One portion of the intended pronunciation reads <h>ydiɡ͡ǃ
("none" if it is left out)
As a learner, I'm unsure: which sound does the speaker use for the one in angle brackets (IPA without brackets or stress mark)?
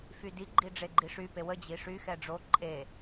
f